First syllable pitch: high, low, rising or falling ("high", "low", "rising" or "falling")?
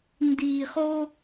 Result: low